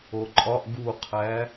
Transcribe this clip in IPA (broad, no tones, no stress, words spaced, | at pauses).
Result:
oǃʼɒʔ ɡuqʰæ